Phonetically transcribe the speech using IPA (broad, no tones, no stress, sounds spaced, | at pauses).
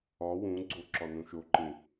ɒ w ũ ɡ͡ǀ o ǁ ɒ n ũ ʃ o ǃ ĩ